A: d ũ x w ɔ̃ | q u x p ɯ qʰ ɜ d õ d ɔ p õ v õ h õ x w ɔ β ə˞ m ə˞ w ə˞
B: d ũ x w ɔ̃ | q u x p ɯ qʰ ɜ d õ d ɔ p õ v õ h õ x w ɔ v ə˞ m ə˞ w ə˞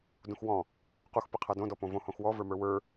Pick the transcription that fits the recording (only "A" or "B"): B